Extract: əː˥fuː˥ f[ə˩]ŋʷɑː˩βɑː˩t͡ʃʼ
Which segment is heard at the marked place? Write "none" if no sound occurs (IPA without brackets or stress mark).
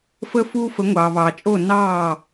ə˩˥